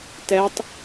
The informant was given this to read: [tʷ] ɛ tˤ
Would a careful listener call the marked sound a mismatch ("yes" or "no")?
yes